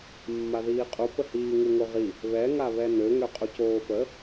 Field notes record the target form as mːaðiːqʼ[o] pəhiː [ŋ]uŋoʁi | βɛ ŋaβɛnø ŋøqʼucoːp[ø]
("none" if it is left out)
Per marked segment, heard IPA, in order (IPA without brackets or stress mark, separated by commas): u, ŋ, ə